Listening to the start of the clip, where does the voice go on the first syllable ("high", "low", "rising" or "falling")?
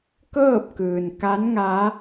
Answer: falling